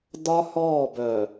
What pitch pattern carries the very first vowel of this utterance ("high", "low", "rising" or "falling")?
high